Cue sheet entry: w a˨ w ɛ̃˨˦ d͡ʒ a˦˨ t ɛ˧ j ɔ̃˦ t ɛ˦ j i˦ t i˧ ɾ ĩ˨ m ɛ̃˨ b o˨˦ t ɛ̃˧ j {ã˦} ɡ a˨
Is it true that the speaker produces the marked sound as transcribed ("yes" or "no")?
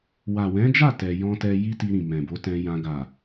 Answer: no